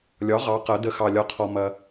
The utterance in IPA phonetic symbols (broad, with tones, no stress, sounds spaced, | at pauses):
lʲ ɒ˩˥ ʁ ɑ˩˧ q ɐ˩˧ d ə˩˥ x ɑ˩ lʲ ɒ˩˧ qʰ ɔ˩ m ɐ˩